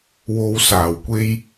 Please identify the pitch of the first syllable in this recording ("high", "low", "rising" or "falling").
low